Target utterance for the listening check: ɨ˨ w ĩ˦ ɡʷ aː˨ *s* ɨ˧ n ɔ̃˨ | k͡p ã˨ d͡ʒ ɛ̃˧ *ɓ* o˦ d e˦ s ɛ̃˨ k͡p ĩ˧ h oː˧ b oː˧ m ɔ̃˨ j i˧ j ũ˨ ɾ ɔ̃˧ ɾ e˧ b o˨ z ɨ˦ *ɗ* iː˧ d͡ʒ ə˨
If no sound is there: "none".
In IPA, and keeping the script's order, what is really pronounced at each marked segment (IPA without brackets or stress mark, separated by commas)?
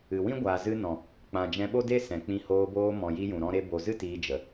z, ɓ, t